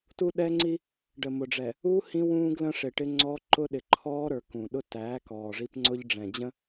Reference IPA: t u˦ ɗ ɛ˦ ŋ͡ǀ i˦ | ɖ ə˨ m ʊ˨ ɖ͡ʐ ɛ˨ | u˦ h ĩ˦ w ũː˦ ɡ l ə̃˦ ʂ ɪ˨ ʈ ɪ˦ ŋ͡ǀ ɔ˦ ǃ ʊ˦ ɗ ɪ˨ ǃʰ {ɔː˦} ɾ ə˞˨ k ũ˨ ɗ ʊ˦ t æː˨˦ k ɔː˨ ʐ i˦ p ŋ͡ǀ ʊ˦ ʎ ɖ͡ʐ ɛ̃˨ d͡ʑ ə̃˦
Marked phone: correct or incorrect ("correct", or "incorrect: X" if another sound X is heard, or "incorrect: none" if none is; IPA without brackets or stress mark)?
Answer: correct